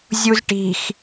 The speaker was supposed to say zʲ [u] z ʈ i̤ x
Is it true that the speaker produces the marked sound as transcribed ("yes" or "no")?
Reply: yes